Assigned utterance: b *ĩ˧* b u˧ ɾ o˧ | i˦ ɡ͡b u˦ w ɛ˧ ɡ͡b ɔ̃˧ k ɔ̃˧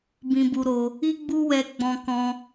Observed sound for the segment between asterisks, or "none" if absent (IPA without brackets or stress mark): ĩ˧